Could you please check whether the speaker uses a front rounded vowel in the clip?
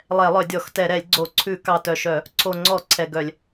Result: yes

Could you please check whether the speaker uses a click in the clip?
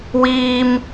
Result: no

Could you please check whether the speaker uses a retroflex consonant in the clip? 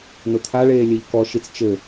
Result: yes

